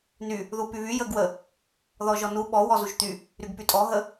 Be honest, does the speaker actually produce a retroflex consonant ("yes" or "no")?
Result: no